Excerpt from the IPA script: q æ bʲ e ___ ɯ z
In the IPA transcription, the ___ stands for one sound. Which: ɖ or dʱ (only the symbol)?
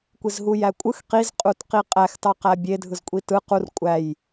dʱ